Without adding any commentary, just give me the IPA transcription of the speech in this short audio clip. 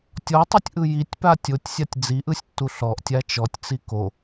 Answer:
tʲ ɔ tˤ u tʲ ʔ ɯ j i tʲ p a tʲ o tʲ sʲ a tʲ d͡z i ʔ ɯ sʲ tː u ɬ ɔ ʔ tʲ a t͡ʃ ɔ tʲ t͡s i k o

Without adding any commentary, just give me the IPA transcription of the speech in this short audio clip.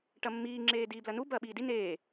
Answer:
ʈ ɐ mː iː ŋ͡ǁ eː d iː b l ɐ n u b ɐː ɓ iː d i n eː

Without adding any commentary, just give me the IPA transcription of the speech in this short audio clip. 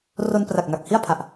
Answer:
r o˧ n p r a˨˩ k̚ ŋ a˨˩ k̚ h i˥˩ a̯ pʰ a˨˩ ʔ

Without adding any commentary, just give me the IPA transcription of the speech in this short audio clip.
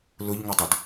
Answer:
l ʊ ʎ ŋ ʊ dˤ ʊ d

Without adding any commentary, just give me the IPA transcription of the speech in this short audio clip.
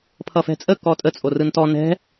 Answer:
pʰ ʌ f ɛ̤ t͡sʼ ə k ɔ tʼ ə t͡sʼ o r ɯ n t ɔ n ɛ̤

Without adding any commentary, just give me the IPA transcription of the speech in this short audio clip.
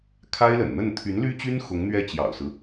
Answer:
kʰ a˥ ɪ̯ l ə̰˨˩ n n̪ ə˥˩ n t̪ʰ y˧˥ n l y˥ t͡ɕ y˥ n x ʊ˧˥ ŋ n̪ ɥ ɛ˥˩ t͡ɕ j ɑ̰˨˩ ʊ̯ s ɹ̩˦

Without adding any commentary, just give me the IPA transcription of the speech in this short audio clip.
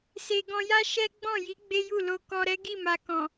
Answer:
s e˨ ɡ ɔ̃˧ j a˦ ʃ ɛ˦ ɡ͡b ɔ̃˦˨ j i˨˦ ɡ͡b e˦ j u˦˨ l o˧ k ɔ˧ ɾ ɛ˦ ɡ i˦˨ m a˨ k ɔ̃˨

